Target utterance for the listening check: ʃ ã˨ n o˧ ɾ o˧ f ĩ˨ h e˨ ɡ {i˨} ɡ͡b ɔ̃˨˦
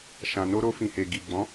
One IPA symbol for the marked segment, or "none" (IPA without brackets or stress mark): i˨